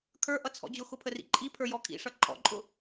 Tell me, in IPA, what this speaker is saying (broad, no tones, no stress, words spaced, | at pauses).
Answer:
kʰə˞ʔʌt͡sʰɔ̰ d͡ʑʊxʊpʰərḭ ǃʼipʰə˞jɔ kʰḭʂʌ ǃʼɔ̰ǃʼʊ